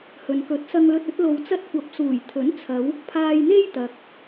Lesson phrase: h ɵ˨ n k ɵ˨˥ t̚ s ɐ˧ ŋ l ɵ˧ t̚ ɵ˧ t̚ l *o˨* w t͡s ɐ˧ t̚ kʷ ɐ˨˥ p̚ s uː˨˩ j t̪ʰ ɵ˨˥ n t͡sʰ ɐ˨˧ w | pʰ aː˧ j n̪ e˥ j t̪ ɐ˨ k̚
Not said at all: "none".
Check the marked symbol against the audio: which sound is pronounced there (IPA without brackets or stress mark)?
o˨